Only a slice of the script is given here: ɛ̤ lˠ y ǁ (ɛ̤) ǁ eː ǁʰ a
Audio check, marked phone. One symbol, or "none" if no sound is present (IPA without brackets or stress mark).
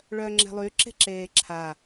e̤